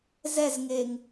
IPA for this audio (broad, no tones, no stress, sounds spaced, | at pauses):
z ɛ z ŋ e ŋ